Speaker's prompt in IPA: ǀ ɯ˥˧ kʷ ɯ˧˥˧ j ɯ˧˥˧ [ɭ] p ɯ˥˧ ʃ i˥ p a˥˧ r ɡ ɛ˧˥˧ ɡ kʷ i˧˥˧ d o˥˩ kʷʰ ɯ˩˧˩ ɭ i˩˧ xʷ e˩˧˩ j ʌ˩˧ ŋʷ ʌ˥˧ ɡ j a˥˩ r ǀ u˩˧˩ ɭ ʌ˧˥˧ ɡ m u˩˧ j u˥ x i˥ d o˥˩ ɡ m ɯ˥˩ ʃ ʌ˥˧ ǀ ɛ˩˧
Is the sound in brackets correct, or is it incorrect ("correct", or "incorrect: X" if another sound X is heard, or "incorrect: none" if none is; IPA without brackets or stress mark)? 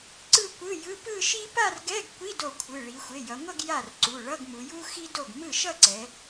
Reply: incorrect: none